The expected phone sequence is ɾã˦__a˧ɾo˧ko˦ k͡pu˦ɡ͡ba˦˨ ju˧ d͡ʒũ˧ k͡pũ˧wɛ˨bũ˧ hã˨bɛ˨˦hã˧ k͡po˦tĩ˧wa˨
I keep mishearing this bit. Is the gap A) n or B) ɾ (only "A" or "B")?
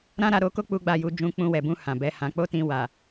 B